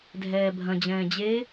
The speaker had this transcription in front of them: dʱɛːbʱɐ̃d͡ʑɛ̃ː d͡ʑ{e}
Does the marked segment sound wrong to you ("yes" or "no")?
no